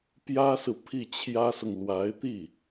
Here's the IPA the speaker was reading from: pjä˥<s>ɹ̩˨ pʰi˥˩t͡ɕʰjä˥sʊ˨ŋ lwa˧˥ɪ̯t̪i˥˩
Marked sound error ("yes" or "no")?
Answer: no